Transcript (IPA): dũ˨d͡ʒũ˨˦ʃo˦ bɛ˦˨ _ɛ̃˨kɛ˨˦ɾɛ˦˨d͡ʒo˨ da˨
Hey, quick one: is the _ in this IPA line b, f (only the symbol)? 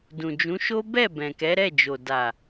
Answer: b